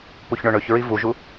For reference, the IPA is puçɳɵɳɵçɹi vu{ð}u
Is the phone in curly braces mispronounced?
yes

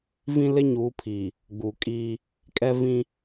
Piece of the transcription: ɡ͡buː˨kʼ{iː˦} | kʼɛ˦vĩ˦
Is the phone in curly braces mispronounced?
no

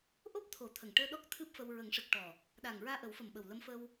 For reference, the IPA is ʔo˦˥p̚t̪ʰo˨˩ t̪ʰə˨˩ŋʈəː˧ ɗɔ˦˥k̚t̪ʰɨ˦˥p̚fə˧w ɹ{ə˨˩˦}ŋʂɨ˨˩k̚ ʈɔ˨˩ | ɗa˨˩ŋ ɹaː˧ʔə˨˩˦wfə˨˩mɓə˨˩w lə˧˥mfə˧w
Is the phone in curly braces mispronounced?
no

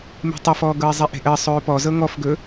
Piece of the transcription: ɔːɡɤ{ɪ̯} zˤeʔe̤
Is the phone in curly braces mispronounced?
no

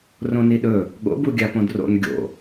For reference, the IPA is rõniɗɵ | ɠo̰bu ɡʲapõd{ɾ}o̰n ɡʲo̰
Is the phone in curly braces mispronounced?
yes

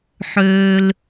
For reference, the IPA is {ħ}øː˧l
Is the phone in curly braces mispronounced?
no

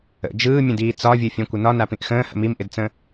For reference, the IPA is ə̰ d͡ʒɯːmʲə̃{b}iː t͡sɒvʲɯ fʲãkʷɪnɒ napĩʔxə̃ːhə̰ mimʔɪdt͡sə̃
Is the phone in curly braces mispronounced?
yes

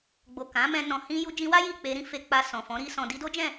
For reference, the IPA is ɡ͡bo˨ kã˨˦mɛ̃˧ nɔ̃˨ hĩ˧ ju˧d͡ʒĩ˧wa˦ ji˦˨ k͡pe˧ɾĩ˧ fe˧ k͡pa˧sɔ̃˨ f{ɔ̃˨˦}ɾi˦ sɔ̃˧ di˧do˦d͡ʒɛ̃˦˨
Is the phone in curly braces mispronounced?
no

